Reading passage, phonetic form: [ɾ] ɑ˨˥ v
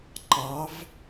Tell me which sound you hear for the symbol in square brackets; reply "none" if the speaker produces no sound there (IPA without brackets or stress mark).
ǃ